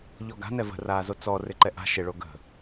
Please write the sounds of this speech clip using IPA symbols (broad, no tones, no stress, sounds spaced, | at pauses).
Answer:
ʎ ɔ ɡ a̤ n ɛ v ə̤ r aː z o t͡s ɔ r ɪ ǃ ɛ ʔ a̤ ʃ ɪ ɭ o ɡ ə̤